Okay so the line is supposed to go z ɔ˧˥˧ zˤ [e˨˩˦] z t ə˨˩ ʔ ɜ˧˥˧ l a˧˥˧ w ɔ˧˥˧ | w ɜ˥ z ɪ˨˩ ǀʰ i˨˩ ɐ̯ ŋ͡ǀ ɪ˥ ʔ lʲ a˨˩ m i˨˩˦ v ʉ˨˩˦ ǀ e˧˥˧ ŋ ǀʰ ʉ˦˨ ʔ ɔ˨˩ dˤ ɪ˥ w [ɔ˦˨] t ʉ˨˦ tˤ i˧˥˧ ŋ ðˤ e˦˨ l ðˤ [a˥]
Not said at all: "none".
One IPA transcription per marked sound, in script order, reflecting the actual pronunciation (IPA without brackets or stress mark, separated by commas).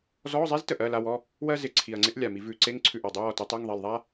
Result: e˥, ɔ˦˨, a˥